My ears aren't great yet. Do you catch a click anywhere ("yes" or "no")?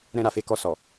no